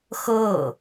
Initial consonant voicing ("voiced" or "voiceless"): voiceless